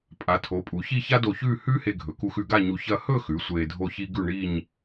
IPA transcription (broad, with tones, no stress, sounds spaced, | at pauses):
pʼ a˩˧ tʰ o˩˧ pʼ u˩˧ ç i˥˧ ç a˥ d o˧˩ ç ʉː˥˧ h ʉː˥ h e˧ ɡʱ ɵ˩˧ k u˧ x ʉ˧ ɡ a˥˧ ɲ u˧ ç ɐ˥˧ h ɵ˥˧ x ʉ˩˧ sʷ eː˧ dʱ o˥˧ ç i˥ ɡ ʉ˥˧ ɳ i˥˧ ɲ